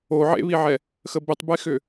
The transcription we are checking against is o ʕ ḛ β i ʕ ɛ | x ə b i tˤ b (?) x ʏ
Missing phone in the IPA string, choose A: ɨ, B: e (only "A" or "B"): B